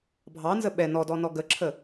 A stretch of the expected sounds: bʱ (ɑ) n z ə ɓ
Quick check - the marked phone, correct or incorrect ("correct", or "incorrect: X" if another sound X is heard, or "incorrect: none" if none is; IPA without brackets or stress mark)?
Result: correct